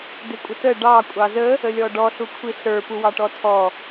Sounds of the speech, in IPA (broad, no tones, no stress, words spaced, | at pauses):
dɪkʷʼətə ɖɑ kʷʼɑzə | əlʲɔɖɔ ɬukʷʰiɬə˞ puwɑʈɔtʰɔ